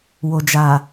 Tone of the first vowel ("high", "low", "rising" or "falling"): low